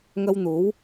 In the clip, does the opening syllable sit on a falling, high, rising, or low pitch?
high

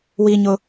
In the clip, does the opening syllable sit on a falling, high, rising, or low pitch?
high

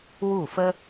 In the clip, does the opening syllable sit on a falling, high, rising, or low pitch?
falling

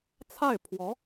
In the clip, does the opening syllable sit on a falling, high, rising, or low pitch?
falling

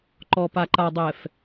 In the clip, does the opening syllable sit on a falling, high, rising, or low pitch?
low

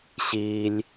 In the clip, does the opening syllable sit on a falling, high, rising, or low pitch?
low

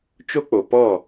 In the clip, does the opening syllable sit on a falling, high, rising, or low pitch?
high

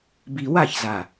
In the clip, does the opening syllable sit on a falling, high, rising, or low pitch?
low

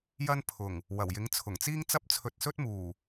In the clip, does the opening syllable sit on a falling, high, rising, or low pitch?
high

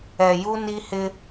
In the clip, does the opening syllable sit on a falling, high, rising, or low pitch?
low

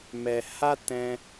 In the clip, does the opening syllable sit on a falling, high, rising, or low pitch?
low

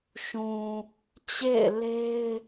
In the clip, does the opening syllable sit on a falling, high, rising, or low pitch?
low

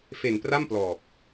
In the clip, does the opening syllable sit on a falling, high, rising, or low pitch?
low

